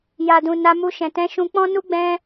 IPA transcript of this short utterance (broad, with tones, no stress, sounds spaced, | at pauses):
j a˨ d ũ˨ n a˧ m u˧ ʃ ɛ̃˨ t ɛ̃˨˦ ʃ ũ˧ k͡p ɔ̃˦ n u˦ ɡ͡b ɛ̃˧